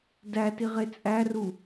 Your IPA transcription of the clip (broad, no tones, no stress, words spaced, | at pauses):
dætiʁe t͡sʼæru